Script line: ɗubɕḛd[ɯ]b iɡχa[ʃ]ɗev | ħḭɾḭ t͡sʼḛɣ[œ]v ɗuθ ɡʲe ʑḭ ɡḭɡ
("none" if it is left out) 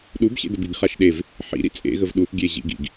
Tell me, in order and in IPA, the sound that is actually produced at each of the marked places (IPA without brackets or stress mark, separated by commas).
ə, ʃ, ə